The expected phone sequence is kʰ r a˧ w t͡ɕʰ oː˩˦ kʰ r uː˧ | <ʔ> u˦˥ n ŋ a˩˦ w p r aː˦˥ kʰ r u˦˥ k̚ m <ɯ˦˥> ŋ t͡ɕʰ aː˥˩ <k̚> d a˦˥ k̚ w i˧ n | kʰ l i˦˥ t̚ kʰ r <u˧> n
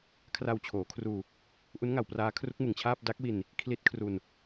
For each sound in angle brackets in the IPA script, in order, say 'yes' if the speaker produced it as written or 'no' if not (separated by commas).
yes, no, no, yes